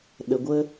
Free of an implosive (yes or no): no